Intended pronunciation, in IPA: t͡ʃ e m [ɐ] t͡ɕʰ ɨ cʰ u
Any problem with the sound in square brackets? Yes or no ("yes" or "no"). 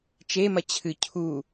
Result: no